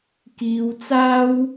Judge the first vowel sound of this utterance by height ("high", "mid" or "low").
high